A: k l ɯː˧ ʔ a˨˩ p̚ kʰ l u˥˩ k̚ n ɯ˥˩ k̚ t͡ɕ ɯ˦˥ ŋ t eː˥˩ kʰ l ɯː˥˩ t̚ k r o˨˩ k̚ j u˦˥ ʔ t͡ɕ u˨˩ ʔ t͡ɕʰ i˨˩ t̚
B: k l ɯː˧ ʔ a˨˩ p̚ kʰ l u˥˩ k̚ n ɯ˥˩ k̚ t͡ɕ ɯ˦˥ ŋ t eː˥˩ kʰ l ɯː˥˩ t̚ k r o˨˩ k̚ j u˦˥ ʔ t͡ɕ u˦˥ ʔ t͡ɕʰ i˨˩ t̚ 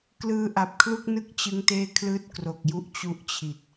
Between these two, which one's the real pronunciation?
B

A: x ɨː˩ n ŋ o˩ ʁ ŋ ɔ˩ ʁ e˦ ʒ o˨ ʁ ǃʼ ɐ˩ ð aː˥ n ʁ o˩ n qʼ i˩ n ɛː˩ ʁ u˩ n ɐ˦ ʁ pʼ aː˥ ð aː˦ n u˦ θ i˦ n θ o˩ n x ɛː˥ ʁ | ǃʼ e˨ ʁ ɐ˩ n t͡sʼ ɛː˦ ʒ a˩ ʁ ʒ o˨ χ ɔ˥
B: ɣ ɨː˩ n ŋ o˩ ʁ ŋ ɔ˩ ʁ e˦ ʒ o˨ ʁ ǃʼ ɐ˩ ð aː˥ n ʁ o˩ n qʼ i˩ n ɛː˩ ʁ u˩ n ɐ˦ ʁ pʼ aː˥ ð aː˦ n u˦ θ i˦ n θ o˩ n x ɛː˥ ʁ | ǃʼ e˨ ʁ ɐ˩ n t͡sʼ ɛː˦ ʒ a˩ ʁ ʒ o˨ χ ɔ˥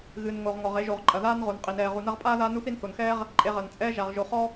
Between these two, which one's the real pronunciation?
B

